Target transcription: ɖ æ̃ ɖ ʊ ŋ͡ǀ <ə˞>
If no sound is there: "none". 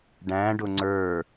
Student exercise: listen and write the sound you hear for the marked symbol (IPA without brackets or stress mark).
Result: ə˞